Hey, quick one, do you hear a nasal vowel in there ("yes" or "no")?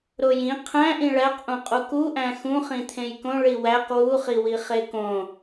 yes